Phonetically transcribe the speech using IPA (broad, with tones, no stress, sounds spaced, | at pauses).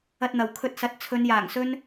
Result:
ɐ˧ t̚ n̪ ɐ˨ w kʰ ɵ˧ t̚ s ɐ˨˥ t̚ t͡sʰ ɵ˨˧ n j aː˨˩ ŋ s ɵ˥ n